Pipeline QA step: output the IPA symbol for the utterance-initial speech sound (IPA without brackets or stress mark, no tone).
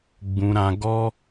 ɡ͡b